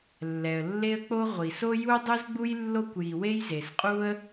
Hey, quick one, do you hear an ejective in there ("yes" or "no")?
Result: yes